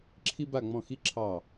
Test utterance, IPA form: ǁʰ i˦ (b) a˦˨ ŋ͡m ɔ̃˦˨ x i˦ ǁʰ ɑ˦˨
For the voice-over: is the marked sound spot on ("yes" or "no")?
yes